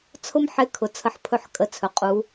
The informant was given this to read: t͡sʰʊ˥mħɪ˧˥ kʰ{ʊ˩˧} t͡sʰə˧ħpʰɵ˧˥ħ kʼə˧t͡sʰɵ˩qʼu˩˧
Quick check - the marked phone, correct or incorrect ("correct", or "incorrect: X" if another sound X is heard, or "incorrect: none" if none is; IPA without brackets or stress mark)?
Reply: correct